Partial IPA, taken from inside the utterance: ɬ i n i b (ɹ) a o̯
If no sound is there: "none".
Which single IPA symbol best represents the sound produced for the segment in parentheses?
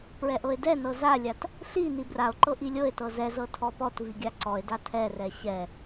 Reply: r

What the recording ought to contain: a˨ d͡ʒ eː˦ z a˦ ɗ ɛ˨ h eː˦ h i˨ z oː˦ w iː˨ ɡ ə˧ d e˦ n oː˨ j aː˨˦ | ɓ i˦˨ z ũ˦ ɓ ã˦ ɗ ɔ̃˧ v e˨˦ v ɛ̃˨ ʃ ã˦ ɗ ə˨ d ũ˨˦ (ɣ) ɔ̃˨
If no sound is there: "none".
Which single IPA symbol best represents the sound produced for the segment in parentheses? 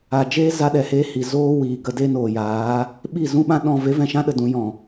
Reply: j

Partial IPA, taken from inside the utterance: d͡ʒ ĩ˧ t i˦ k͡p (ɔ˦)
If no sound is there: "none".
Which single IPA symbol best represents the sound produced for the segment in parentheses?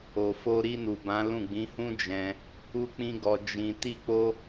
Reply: o˦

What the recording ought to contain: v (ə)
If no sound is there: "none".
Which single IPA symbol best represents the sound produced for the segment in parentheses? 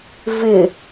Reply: ɪ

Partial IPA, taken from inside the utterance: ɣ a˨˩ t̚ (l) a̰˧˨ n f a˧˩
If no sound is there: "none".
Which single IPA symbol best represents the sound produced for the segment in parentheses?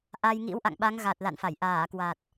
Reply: l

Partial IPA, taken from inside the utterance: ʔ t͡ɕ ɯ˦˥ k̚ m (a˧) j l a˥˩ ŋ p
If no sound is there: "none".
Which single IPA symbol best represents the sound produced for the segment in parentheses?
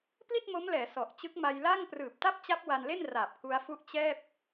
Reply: a˧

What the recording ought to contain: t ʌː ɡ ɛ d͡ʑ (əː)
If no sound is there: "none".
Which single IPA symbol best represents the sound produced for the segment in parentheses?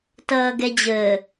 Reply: əː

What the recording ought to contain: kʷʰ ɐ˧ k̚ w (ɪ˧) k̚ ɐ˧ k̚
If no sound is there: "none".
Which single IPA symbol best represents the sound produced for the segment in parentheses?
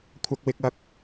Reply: ɪ˧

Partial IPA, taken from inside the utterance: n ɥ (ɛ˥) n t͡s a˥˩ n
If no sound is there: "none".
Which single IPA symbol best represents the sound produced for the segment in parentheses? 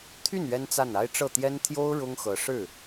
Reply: ɛ˥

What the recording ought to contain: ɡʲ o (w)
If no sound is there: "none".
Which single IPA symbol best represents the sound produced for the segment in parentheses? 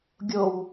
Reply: w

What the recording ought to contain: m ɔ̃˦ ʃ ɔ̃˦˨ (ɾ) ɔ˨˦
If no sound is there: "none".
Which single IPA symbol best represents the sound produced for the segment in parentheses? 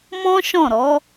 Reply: ɾ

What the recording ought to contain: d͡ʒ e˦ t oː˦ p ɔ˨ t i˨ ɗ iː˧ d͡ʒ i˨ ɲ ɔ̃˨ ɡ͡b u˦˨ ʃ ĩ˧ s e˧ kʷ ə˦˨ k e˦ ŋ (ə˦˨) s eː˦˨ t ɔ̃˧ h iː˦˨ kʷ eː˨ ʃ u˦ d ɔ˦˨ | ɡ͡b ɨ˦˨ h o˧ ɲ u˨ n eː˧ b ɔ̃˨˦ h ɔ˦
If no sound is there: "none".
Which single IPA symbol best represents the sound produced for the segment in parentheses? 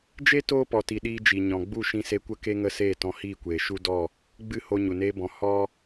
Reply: ə˦˨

